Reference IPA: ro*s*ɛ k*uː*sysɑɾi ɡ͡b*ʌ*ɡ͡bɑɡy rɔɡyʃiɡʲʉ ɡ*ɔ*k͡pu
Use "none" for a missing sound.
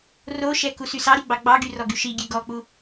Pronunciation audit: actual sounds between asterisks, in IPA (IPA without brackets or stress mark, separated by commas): ʃ, u, ɑ, ɔ